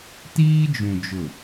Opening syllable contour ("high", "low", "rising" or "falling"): high